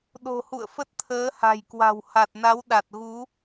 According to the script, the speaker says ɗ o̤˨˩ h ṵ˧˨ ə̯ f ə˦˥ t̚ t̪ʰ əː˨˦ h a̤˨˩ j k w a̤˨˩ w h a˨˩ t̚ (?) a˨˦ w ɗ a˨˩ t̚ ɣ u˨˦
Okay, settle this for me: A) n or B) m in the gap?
A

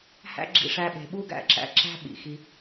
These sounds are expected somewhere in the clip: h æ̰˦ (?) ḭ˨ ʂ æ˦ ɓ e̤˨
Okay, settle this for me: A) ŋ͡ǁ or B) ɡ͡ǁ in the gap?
B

